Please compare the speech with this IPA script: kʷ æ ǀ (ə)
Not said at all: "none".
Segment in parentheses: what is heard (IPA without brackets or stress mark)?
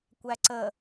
ə